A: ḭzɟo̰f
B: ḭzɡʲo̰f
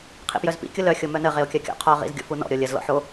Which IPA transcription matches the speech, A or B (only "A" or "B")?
B